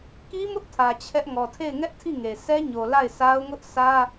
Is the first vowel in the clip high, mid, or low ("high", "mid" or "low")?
high